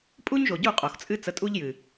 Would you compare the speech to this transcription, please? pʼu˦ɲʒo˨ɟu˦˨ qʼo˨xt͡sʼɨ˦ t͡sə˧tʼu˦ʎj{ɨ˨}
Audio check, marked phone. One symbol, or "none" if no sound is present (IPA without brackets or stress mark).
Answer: ɨ˨